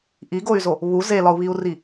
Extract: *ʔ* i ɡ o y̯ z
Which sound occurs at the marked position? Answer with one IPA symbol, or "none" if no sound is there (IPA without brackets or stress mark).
ʔ